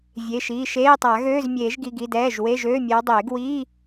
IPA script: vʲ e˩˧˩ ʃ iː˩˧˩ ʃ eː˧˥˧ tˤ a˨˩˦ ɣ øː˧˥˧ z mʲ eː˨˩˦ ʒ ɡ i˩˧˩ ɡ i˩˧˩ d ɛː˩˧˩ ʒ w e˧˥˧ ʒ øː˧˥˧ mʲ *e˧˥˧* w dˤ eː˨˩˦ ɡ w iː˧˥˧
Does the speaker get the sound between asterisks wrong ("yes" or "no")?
yes